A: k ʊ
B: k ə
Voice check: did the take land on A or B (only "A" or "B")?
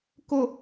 A